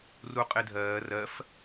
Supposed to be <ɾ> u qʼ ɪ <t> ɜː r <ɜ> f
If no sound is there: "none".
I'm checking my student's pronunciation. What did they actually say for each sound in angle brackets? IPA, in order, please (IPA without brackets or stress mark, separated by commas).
r, dʱ, ɜ